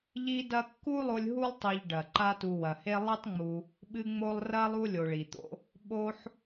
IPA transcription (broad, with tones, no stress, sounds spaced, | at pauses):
ʎ i˦ d ɐ˦ kː u˥ lˠ o˦ lʲ ɦ u˥ lˠ tˤ i˨ ʎ ɖ ɐ˩ ǃ a˦ t u˨ w ɐ˩ h e˦ lˠ e˥ tˤ ŋ͡m u˨ | ɓ ɨ˦ ŋ͡m o˦ lˠ r ɐ˥ lˠ u˦ lʲ o˨ ɭ i˩ t̪ o̰˥ | ɓ o˥ ħ